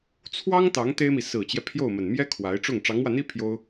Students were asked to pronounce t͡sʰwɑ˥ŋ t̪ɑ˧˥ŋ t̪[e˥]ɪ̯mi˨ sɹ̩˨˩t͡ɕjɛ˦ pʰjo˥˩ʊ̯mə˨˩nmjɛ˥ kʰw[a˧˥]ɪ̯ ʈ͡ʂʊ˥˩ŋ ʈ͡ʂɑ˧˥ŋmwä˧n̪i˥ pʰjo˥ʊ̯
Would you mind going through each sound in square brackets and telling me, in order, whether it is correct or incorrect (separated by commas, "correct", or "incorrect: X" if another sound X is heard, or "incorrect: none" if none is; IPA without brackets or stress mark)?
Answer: correct, correct